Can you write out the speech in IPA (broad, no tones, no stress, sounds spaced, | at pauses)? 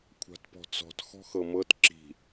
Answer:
kʷʰ a̤ t p ɔ̤ t͡s ɔ̤ t x ɔ̤ x ɤ m ɤ t ǁ i̤